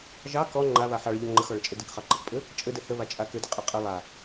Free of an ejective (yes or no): no